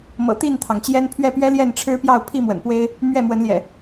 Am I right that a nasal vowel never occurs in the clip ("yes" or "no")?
yes